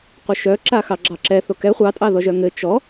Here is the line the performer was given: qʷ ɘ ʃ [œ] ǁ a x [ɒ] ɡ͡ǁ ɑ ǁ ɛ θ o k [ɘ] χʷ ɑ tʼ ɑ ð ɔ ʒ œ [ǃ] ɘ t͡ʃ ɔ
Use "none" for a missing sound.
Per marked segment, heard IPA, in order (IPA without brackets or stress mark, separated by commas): œ, ɑ, ɛ, ŋ